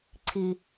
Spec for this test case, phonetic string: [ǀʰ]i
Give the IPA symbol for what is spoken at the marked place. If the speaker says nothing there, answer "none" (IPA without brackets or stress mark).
ǀʰ